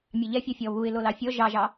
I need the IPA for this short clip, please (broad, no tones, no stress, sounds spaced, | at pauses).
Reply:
mʲ ɑ ʎ ɛ fʲ ɔ fʲ ɔ β u ɪ̯ l o l ɑ fʲ ɔ ʒ ɑ ʒ ɑ